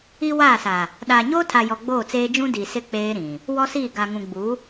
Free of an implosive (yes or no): no